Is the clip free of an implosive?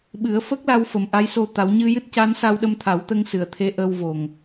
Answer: no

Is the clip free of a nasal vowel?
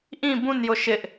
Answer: no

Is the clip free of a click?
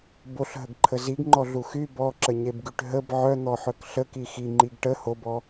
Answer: no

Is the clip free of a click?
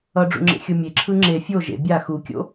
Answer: no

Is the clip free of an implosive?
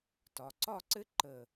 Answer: yes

